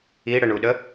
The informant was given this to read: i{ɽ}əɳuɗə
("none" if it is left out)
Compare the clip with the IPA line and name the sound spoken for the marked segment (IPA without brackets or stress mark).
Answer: ɽ